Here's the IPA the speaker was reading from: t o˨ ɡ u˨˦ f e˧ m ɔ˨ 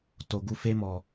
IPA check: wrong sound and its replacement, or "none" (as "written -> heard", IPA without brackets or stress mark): none